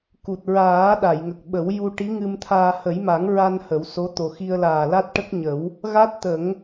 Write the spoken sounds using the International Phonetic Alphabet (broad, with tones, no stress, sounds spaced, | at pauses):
k u˨˩ t̚ ɹ aː˨˩˦ ɗ a˨˩˨ j ŋ ə˨˩ k̚ ɓ ə˨˩˦ w j u˧ ʈ i˧˥ ŋ ɨ˧ m t̪ʰ aː˧ h ə˨˩˦ j m a˨˩˦ ŋ ɹ a˧ n h ə˨˩˦ w s o˧˥ t̪ o˨˩ x i˧ ə̯ l aː˨˩ l a˦˥ t̚ ʈ ə˦˥ k̚ ɲ ə˨˩˦ w | ɣ a˦˥ t̚ t̪ ə˨˩˦ ŋ